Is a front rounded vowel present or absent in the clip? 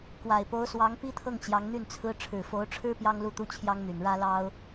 present